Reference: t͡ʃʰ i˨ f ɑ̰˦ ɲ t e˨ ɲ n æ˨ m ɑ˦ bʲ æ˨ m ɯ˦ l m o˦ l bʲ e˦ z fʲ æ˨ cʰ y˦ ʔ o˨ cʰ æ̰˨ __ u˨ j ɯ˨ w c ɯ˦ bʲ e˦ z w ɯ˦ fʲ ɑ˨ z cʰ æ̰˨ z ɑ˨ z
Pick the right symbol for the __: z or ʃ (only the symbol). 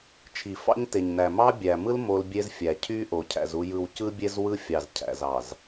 z